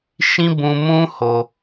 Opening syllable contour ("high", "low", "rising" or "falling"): high